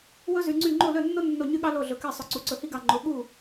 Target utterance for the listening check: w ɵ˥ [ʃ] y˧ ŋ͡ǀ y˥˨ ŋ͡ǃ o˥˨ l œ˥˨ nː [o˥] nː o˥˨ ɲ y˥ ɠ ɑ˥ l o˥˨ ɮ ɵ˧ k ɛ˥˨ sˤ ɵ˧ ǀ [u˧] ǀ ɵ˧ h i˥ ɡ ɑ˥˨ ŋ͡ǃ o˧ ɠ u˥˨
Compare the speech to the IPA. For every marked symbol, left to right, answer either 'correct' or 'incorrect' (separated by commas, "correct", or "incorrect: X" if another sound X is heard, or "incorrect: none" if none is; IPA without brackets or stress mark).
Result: incorrect: z, correct, correct